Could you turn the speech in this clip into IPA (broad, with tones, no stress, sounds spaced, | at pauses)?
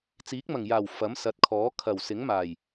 t͡s iː˨˥ k̚ m ɐ˨˩ ŋ j aː˨˩ w f ɐ˨˥ m s ɐ˨˥ t̚ kʰ ɔː˨˥ kʰ ɐ˨˩ w s ɪ˨˥ ŋ m aː˨˩ j